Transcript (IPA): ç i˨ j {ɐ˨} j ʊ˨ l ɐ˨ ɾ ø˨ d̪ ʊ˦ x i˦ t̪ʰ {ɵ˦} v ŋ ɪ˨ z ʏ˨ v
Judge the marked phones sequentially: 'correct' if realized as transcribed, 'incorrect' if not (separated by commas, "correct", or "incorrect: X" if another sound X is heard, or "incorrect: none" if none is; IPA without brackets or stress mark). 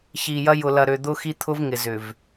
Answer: incorrect: ɐ˦, incorrect: ʊ˦